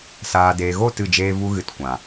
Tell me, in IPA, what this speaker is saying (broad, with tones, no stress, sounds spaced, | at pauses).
s aː˨ d eː˨ ɣ o˦˨ t ɨ˦˨ d͡ʒ eː˦ v u˦ ɣ ɨ˧ t kʷ ã˨